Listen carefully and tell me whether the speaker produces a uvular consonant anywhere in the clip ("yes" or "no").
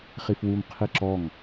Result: yes